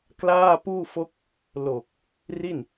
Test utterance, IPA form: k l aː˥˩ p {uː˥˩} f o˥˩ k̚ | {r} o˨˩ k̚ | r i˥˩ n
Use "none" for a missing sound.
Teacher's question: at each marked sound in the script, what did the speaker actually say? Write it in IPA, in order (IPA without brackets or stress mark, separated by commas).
uː˥˩, l